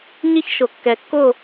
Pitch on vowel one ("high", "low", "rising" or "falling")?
falling